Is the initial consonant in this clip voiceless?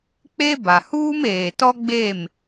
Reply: yes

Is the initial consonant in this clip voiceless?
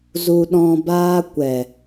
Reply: no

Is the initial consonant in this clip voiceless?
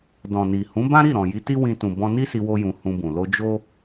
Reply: no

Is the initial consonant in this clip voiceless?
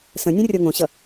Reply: yes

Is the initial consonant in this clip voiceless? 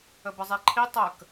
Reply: no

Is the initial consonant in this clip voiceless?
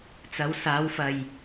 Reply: yes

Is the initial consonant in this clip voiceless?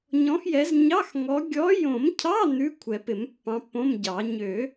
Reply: no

